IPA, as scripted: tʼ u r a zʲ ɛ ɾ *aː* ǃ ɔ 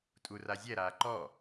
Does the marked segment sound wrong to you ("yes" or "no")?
no